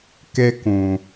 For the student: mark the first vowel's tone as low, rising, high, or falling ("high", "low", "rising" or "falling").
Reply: high